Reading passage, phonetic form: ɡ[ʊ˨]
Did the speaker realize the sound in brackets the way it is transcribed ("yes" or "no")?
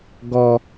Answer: no